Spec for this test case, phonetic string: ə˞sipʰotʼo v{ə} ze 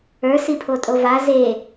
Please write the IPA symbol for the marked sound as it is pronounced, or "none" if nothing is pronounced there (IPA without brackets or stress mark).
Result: a